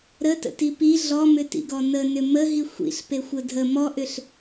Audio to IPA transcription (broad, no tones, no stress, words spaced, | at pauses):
ɾətə̰ti pi ɮɔmʏtḭɡɔ nənʏ məɦi xʷḭɬpexʷə dʱə mɔʔʏɬ